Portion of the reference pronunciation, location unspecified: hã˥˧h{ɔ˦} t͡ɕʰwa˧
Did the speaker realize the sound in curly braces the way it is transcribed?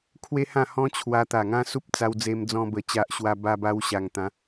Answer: no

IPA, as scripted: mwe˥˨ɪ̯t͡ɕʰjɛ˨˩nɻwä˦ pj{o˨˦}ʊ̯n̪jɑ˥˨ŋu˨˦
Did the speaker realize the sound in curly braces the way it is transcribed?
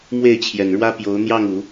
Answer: yes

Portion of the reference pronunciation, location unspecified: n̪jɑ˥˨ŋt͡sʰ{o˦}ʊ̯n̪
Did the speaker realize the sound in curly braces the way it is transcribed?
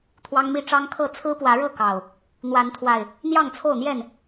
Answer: no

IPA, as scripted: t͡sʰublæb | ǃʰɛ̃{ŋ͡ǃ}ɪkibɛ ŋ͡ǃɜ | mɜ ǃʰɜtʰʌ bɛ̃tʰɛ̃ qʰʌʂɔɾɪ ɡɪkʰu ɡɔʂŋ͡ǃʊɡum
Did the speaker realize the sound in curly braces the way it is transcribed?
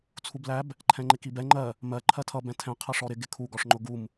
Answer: yes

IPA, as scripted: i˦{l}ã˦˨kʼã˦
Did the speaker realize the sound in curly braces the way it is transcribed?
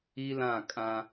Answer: yes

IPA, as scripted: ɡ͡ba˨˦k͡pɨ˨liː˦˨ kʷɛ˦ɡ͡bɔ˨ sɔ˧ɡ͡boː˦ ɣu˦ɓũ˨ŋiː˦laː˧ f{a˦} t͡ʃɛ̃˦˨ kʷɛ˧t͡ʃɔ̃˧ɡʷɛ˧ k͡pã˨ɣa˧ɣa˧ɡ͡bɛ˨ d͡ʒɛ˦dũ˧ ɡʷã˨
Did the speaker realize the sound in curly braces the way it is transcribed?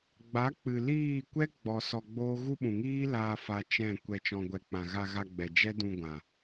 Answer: no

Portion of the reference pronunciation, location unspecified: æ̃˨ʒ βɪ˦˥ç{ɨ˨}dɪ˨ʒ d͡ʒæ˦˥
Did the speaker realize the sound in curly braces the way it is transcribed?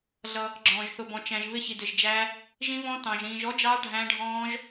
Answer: no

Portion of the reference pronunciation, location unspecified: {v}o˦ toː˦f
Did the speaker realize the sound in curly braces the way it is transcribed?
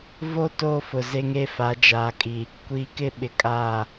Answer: yes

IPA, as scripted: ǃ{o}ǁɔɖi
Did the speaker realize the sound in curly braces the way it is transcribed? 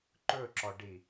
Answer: no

